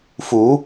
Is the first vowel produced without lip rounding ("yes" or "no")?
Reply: no